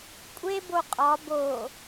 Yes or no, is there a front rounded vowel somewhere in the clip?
no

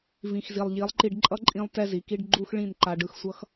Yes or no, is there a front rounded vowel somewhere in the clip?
no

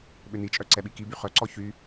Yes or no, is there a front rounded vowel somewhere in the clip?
yes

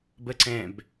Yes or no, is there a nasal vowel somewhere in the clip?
yes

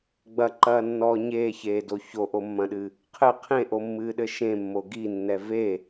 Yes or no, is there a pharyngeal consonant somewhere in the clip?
no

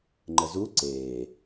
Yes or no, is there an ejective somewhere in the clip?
no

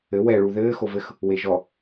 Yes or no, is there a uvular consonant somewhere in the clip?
no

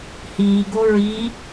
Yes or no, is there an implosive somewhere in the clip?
no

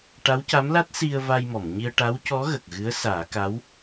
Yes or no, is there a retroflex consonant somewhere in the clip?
yes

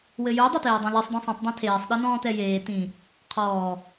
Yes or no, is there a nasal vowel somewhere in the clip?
yes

